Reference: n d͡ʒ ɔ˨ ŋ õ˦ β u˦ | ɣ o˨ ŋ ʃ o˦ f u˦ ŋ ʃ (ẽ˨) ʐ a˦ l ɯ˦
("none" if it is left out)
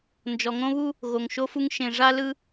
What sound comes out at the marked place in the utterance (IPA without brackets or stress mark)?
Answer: ẽ˨